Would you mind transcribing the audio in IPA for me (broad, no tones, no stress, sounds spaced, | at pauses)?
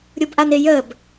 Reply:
ɾʲ u b ʔ a n ɪ j ə b